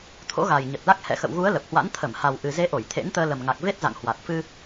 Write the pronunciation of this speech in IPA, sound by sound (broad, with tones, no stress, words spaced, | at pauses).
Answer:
t̪ʰo̰˧˥ɣa˨˩j ɲə˨˩t̚la˦˥k̚ hɛ̰˧˨xə̰˧˨wɣu˨˦ə̯ lə˨˩p̚hwa̰˧˥n t̪ʰə˧˩mha˨˩w ʔɨ˨˩ze˨˦ʔo˧˩j t̪ʰḛ˧˥nt̪əː˧ lə˨˩mŋa˨˩k̚ ve˦˥t̚za̰˧˨ŋhwa˨˩t̚fɨ˧